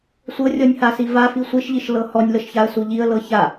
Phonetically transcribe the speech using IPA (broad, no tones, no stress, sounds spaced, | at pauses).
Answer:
sʷ ɤ rʲ ɔ nʲ h a s i v a f i sʷ i ʃ ʎ i ʃ l ɤ h ɔ nʲ l ɤ ʃ ç a ə̯ s u ʎ i ə̯ l ɤ ç a